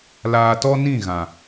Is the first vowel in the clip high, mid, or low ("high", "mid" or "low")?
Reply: low